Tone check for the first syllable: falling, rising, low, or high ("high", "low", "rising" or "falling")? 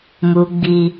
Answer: high